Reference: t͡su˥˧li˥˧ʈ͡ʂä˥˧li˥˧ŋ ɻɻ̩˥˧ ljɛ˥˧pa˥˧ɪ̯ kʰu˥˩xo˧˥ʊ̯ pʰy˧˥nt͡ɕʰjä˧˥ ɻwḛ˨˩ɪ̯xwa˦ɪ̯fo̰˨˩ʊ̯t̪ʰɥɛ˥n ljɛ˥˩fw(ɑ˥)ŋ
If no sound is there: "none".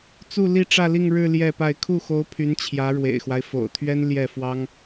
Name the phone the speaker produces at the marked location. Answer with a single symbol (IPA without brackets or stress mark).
ɑ˥